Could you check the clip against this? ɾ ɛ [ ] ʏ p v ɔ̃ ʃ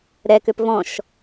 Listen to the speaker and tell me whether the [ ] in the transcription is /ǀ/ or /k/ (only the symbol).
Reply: k